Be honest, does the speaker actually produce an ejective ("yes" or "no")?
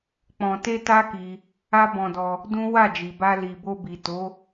no